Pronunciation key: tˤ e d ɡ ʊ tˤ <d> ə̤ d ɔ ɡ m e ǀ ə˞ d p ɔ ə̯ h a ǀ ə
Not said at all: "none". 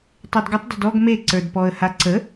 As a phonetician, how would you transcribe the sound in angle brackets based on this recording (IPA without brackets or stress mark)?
d